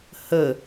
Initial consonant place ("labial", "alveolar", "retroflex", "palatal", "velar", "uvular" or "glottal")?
glottal